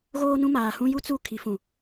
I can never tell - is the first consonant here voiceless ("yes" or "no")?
no